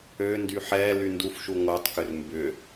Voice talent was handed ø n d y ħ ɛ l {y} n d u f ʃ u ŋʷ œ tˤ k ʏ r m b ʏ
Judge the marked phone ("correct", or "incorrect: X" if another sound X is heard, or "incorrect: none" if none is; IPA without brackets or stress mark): correct